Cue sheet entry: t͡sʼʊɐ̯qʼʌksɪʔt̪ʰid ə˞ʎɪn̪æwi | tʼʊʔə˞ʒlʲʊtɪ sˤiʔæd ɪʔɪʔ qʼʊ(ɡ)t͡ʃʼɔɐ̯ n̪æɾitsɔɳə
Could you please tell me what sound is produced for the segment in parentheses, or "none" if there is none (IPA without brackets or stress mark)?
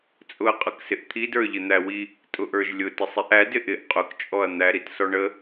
k